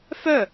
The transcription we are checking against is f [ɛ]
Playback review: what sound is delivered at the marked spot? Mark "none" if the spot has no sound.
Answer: œ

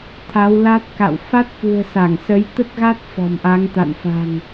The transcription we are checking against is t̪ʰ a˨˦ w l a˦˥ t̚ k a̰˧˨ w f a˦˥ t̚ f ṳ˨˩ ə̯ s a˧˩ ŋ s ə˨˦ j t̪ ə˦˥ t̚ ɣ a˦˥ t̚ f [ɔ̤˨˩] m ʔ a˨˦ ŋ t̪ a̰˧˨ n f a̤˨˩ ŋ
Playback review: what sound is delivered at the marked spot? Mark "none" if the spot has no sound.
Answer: ɔ̤˨˩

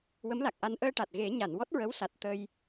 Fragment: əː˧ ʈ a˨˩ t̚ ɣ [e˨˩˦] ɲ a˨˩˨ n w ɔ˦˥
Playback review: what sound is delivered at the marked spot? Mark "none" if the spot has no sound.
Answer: e˨˩˦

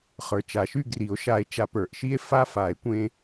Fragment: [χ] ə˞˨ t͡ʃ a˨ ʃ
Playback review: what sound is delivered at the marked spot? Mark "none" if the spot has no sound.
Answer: χ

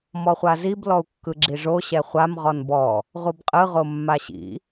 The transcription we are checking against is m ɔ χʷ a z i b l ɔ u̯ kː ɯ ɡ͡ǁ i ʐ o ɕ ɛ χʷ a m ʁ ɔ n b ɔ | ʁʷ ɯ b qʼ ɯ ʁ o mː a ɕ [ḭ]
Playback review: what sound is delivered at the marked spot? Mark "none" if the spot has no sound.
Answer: ḭ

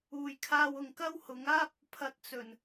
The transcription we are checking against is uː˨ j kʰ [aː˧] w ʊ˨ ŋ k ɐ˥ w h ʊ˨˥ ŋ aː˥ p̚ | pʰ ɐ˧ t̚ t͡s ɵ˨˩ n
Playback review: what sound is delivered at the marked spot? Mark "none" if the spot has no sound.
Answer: aː˧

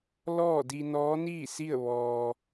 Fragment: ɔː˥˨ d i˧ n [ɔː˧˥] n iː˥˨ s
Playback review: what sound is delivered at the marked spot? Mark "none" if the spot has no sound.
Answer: ɔː˧˥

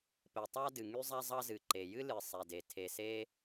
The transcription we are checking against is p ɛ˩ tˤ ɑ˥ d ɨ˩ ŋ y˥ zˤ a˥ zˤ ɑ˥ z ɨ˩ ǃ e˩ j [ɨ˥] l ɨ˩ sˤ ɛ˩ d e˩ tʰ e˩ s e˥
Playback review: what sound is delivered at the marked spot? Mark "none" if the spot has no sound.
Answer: ɨ˥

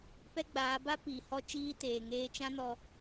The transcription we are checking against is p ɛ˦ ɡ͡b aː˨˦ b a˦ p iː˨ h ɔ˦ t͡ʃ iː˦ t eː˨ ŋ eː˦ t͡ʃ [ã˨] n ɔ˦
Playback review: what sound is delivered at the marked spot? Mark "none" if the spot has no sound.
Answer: ã˦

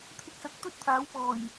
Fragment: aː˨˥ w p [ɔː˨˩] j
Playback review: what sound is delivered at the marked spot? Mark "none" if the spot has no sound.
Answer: ɔː˨˩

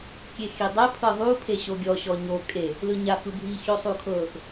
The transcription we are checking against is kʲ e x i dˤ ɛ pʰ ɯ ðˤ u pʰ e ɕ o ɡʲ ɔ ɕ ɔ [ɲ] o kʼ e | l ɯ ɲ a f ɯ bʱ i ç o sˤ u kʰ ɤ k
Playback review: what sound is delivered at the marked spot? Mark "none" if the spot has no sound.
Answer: ɲ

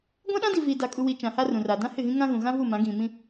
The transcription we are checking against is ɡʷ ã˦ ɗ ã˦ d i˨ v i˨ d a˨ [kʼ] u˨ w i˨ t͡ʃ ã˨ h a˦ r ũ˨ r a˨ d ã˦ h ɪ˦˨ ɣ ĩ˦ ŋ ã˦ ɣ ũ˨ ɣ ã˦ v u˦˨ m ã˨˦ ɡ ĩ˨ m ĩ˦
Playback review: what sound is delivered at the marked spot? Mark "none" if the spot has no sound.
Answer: kʼ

